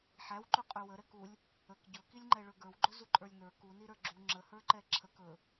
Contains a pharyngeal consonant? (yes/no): yes